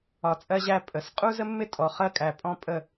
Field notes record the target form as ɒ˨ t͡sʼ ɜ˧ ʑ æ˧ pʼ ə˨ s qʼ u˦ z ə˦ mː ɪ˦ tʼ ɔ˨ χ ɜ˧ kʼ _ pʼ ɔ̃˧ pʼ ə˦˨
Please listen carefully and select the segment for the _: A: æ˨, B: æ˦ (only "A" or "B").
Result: A